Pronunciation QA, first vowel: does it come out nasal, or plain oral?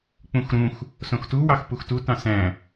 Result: nasal